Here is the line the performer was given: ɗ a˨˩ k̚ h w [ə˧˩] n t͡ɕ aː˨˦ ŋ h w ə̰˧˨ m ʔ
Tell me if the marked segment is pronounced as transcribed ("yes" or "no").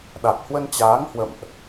no